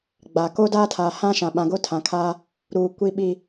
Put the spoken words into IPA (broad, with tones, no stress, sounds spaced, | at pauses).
ɡ͡b a˨ k o˦ d aː˦ tʰ aː˨ h ã˦ ʃ ã˨ ɓ ã˨ ɡ o˦ tʰ ã˨ kʰ aː˦ | ɾ uː˨ kʷ i˨ ɓ i˨